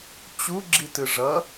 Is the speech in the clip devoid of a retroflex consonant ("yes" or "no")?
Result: no